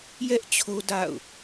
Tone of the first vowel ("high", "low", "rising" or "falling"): high